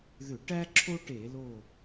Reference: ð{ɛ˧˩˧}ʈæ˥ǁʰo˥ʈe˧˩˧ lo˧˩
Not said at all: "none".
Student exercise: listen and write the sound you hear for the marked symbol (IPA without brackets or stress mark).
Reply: ʏ˧˩˧